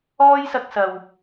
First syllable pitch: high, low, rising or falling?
high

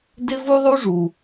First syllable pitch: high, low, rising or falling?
high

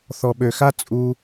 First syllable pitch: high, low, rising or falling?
low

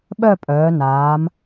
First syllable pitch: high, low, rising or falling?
falling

